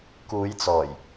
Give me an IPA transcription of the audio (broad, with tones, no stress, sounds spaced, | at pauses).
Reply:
k uː˨˧ j t͡s ɔː˨˩ j